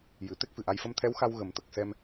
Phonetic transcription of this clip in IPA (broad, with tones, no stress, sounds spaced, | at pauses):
j ɨ˨˩˦ t̪ e˦˥ k̚ f ɨ˨˩˨ ʔ a˧ j f ə˧ m t̪ʰ ɛ˧˥ w x a˧ w ɣ ə˨˩˦ m t̪ ə˨˩ k̚ s ɛ˧ m